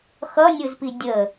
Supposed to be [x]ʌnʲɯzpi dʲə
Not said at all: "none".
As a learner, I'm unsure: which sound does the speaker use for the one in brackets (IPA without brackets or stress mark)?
x